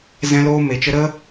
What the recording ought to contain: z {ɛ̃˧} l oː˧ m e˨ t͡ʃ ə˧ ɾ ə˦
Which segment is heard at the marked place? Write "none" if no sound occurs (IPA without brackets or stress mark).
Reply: ɛ̃˧